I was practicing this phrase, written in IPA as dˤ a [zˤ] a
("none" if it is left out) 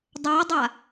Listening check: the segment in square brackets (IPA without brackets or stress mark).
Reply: dˤ